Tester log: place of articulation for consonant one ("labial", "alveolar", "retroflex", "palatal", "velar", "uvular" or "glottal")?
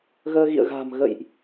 velar